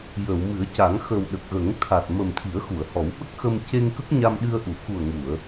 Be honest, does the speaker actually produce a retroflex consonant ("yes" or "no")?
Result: no